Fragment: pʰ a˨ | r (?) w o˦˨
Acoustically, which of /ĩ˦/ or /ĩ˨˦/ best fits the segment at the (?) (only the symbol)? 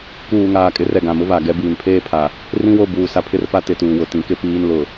ĩ˦